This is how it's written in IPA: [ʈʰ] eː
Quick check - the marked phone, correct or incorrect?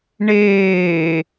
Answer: incorrect